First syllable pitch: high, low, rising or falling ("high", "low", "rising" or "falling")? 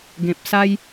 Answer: low